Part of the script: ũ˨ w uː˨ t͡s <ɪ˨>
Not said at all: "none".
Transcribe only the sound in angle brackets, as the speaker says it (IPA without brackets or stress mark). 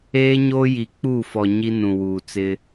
ɪ˦